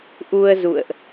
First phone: ʔ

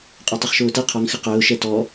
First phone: qʼ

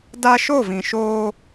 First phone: d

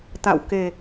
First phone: t̪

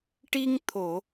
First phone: ʈ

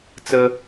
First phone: t͡s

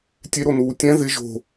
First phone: tʲ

